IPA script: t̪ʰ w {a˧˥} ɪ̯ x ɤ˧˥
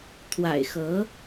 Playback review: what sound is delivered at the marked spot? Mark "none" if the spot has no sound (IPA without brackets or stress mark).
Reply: a̰˨˩